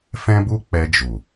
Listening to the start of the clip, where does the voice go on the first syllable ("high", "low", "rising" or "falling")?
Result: high